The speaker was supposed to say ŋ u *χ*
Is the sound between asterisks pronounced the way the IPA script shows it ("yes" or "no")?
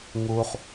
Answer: yes